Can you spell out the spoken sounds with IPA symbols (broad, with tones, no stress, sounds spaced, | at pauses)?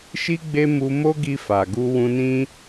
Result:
ʃ i˦ ɡ͡b e˦ m u˧ m o˦ ɡ i˧ f a˨ ɡ u˧ w ũ˧ n ĩ˦